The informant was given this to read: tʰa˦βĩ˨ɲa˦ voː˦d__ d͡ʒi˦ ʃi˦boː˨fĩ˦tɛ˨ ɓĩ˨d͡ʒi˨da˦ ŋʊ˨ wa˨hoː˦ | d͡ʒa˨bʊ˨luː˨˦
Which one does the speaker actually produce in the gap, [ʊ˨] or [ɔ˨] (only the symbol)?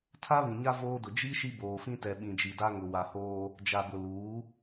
ʊ˨